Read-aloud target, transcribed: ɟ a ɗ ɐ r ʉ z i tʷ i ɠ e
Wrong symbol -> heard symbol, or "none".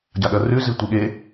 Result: none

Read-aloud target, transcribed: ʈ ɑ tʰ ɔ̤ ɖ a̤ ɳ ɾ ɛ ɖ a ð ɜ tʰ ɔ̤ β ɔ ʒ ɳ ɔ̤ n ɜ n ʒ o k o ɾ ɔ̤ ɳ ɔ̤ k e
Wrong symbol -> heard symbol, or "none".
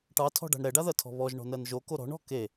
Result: none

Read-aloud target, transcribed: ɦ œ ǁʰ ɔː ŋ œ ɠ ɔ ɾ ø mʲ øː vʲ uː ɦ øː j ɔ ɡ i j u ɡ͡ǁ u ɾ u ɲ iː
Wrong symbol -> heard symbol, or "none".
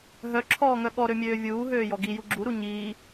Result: none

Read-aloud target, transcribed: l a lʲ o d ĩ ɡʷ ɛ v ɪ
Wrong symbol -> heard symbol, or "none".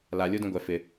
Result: v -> f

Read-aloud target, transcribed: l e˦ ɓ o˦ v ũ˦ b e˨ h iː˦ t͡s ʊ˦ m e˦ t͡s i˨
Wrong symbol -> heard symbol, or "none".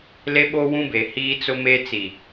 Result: v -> w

